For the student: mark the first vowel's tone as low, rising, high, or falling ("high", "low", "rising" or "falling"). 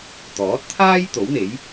rising